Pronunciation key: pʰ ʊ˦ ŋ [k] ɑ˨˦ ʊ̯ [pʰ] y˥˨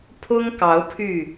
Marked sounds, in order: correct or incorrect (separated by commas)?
correct, correct